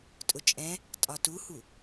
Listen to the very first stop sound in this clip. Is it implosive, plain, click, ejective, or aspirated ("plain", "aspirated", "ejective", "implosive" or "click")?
ejective